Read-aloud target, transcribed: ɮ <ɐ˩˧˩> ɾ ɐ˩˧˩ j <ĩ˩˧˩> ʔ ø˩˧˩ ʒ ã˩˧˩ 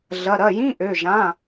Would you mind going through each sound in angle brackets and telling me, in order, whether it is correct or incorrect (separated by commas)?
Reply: correct, incorrect